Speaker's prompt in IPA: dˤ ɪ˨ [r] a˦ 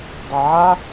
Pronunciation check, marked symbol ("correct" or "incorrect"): incorrect